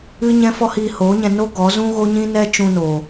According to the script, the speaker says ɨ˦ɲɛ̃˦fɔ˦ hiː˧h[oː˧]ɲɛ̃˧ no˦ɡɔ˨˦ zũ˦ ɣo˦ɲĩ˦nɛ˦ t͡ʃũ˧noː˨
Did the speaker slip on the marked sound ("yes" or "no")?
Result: yes